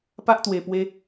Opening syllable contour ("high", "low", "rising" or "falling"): high